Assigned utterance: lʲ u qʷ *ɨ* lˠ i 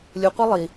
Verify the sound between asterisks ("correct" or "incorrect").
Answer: incorrect